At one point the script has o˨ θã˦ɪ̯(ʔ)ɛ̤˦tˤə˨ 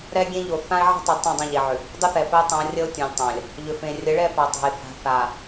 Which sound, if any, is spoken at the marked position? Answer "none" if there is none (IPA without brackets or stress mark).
ʕ